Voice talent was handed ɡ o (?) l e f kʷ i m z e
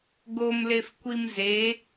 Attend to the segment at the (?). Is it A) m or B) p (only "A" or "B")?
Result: A